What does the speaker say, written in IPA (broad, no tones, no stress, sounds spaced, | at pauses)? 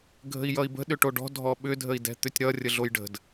ɡʱ ə̤ i̯ j ʌ i̯ b ə̤ ɗ ʏ ʈ o ɖ ɔ̤ dʱ ɔ ɓ ʏ dʱ ə i̯ d ɛ̤ t̪ ʏ tʲ ɾ ʌ rʲ ə ɮ o j ɖ ə̤ d